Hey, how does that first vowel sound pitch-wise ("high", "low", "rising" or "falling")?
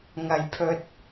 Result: low